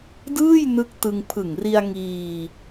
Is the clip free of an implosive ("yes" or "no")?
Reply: yes